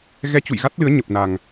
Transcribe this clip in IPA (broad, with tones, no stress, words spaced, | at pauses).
ɣɛ˧t͡ɕṵ˧˨jɣa˦˥t̚lɨ˨˦ə̯ ɲə˨˩p̚na˨˩ŋ